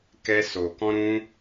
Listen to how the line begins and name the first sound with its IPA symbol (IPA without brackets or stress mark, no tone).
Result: k